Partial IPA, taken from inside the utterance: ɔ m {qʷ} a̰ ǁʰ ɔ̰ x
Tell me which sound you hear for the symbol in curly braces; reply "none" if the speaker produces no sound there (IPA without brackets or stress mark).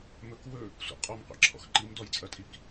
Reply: qʷ